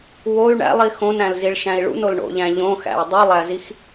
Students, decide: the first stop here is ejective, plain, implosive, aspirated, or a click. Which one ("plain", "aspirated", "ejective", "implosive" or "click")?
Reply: plain